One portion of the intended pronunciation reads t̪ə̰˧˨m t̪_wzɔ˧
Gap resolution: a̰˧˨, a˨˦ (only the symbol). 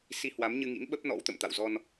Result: a̰˧˨